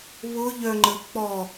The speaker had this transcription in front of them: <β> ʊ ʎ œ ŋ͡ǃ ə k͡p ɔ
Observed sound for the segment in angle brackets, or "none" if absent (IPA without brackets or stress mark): β